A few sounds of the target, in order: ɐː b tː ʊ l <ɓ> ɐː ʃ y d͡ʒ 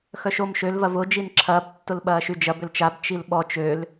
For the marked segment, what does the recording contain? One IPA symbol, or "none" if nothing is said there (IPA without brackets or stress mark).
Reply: ɓ